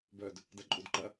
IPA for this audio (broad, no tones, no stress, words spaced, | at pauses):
bœd | dɐǃʼudǃɐ